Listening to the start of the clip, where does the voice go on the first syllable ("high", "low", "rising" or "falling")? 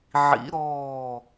rising